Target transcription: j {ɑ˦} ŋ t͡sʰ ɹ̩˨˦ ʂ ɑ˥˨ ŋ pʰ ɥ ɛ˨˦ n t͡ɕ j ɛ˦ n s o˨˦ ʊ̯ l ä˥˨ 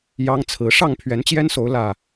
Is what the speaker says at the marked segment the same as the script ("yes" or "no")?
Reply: yes